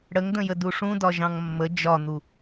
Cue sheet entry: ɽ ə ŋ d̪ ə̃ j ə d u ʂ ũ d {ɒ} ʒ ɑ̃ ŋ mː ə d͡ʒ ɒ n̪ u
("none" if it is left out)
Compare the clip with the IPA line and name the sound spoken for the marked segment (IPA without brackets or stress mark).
ɒ